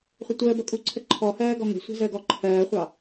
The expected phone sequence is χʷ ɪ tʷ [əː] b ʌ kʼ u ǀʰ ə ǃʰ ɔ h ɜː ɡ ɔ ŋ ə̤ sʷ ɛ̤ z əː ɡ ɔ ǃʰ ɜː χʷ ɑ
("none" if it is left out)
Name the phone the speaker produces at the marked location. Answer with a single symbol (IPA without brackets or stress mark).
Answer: əː